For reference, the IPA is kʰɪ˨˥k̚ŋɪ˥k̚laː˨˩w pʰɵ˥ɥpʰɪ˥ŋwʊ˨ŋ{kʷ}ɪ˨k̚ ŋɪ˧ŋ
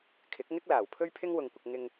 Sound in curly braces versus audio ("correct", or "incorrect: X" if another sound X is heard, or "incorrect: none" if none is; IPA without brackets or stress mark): correct